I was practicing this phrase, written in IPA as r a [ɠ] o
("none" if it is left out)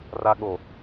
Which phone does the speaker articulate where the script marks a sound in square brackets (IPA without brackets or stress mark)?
ɠ